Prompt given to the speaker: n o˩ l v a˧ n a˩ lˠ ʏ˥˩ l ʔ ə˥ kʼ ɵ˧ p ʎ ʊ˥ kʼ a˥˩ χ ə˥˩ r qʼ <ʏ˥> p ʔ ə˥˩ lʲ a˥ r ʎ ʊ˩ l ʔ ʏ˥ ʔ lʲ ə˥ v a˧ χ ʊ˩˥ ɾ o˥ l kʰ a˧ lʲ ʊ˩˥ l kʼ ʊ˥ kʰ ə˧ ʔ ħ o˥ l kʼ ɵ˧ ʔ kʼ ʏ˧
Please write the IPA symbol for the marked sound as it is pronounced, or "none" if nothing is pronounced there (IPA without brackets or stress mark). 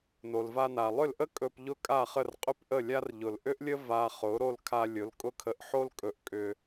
ʏ˥